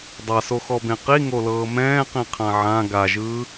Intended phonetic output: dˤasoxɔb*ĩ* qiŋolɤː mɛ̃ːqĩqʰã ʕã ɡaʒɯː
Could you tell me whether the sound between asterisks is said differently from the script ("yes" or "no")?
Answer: yes